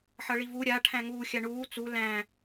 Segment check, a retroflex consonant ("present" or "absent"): present